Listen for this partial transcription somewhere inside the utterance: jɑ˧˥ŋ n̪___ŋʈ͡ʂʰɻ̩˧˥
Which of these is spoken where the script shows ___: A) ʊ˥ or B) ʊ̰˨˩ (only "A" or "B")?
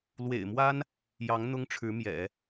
A